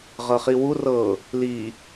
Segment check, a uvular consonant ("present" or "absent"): present